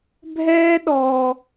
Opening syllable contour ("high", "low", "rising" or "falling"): high